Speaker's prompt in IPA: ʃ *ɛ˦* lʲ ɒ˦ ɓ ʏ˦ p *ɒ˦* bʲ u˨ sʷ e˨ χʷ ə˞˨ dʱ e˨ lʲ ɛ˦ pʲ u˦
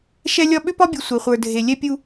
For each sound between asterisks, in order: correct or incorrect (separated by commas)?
correct, correct